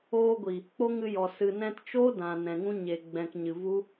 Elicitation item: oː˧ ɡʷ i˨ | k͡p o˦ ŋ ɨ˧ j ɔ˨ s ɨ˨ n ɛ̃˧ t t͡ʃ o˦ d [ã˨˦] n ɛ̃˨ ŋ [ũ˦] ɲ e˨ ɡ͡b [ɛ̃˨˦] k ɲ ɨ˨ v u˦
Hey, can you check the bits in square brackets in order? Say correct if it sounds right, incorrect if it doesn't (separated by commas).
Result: incorrect, correct, incorrect